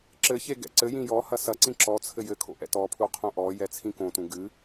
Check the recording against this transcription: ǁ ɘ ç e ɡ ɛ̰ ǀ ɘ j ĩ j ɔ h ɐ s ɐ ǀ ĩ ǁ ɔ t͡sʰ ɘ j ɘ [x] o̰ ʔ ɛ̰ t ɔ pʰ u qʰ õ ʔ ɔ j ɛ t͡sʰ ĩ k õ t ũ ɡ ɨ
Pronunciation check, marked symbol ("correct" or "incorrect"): incorrect